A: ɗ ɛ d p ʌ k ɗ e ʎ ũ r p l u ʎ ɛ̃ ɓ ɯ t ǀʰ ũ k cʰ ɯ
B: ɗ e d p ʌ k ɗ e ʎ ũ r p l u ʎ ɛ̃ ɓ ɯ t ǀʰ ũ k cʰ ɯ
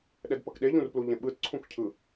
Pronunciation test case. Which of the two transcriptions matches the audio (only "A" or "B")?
A